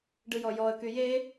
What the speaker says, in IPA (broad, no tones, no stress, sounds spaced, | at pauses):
ɖ ɯ j ɔ j ɔ ə̯ k y j e